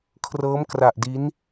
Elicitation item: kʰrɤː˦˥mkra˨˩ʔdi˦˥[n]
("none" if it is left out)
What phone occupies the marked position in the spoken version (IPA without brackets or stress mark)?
n